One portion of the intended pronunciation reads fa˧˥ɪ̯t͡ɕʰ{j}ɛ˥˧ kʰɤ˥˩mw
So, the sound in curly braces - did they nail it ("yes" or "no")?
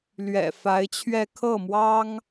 no